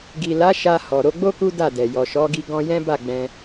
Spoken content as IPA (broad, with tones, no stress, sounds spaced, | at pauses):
ɡ i˨ l a˨˦ ʃ a˧ h ɔ˨ ɾ o˨˦ ɡ͡b o˦ k u˦ d a˦˨ d ɛ˨ j ɔ˨ ʃ ɔ˨˦ ɡ i˧ ɡ ɔ̃˦ j ɛ̃˦ b a˦˨ ɡ͡b ɛ̃˧